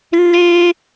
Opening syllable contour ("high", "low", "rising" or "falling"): high